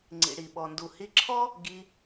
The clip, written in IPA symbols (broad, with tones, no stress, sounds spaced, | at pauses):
ŋ͡ǀ ḭ˨ ɽ i˨ ɓ ɔ˨ n d u˨ h i˧ ǁʰ ɔ˦ | ɡ i˧